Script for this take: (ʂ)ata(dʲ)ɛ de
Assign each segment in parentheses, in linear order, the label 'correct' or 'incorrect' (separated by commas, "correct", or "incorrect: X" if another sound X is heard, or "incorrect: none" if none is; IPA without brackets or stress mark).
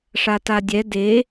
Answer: correct, correct